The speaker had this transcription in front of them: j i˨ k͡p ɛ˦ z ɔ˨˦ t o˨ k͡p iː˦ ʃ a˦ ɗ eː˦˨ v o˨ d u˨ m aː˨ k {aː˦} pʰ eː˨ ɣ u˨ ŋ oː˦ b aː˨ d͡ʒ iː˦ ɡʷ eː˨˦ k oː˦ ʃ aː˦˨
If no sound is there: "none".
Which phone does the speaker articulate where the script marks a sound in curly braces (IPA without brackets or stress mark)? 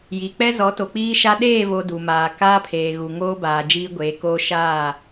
aː˦